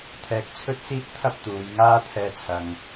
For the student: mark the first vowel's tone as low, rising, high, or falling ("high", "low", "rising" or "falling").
low